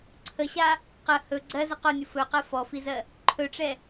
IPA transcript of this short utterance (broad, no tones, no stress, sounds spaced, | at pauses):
ǀʰ ə ɕ a | q ə h ɵ ɡ͡ǀ ɜ z ə q o nʲ ʊ f ɵ q ɜ f ɔ f i z ɜ | ǃʰ ɵ ʈ͡ʂ ɛ